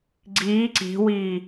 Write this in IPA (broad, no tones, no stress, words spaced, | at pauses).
ɡ͡ǀiː ǀi̤wiː